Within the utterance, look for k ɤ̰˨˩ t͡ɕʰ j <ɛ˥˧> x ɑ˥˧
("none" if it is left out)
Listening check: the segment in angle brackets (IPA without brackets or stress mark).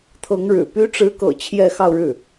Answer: ɛ˥˧